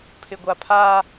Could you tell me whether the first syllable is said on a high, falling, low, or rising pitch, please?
low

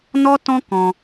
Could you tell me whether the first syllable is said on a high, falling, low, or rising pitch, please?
high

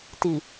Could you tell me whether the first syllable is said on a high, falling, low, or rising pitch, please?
low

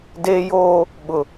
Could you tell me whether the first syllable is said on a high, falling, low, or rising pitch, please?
high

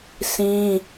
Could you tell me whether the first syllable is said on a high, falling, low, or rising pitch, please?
high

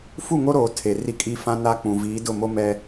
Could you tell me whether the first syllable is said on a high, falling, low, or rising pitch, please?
falling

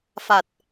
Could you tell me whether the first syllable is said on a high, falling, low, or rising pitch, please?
low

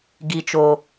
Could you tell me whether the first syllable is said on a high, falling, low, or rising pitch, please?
low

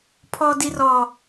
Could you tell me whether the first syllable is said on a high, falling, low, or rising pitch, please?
high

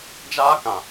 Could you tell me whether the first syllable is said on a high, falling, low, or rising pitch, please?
high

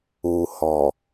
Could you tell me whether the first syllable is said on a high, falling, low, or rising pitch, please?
low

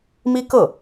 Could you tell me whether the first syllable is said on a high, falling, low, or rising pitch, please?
high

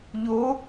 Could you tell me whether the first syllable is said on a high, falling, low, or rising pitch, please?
rising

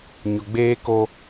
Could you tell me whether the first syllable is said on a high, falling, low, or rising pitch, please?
low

